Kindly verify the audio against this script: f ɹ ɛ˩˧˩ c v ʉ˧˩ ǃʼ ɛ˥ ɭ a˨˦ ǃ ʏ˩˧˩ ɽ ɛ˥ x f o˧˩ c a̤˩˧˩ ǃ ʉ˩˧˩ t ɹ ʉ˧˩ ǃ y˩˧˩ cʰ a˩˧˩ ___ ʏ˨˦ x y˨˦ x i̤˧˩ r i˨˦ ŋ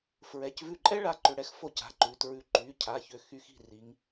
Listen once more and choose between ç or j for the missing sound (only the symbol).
ç